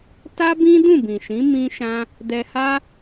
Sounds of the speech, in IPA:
t a˦ b ĩ˦ d ũ˦˨ b ĩ˨ ʃ ĩ˨˦ m ĩ˦ ʃ ã˦ | d ɛ˧ h a˦

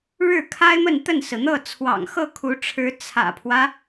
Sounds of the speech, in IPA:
ɻ ɻ̩˥˩ kʰ a˥ ɪ̯ m ə˥˧ n t̪ ə˥˩ n s ɹ̩˩ n̪ ɤ˥˩ t͡sʰ w ɑ̰˨˩ ŋ x ɤ˥˩ kʰ u˧˥ ʈ͡ʂʰ ɻ̩˧˥ t͡sʰ ä̰˨˩ pʰ w ä˦

